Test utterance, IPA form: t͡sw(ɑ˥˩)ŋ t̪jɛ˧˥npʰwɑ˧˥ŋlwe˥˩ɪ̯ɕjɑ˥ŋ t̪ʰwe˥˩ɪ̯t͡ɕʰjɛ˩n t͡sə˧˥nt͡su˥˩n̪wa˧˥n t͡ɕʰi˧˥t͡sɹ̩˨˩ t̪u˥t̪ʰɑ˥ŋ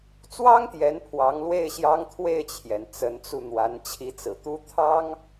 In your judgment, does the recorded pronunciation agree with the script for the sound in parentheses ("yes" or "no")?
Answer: no